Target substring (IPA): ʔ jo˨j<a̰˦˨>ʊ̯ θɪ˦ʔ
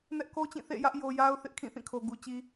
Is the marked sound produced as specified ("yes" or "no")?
no